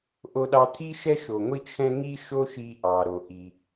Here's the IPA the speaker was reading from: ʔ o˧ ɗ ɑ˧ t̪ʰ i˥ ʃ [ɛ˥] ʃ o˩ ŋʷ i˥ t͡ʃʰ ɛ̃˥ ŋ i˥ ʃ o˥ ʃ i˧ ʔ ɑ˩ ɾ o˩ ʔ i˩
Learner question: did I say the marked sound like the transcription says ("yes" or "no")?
yes